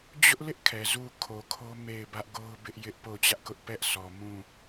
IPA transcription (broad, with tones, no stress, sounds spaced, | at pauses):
d͡ʑ ʊ˦ ʔ l ɪ˦ ʔ kʰ ɛ˨ z u˦˨ kʰ o˨ kʰ o˦ m e˦˨ ɪ̯ b ä˦ ʔ ɡ o˦ ʊ̯ b ɪ˦ ʔ j ɪ˦ ʔ p o˦˨ ʊ̯ t͡ɕ ä˦ ʔ k ʊ˦ ʔ p ɛ˦ ʔ sʰ ɔ˨ m ũ˦˨